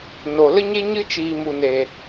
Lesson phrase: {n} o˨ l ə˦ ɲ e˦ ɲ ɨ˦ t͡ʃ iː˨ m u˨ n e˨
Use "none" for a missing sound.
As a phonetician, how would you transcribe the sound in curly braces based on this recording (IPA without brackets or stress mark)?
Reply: n